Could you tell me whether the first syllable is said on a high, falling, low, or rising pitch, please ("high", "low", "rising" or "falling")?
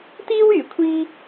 high